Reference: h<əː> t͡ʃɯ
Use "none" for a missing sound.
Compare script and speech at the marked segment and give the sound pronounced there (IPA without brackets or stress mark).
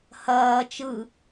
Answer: ɐː